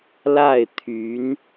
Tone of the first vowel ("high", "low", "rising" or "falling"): falling